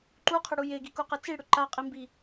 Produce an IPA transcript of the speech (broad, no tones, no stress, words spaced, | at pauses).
ǃuqʰɘɽu jeɡikuqɘ t͡siɽʏ ǃaqʼimbi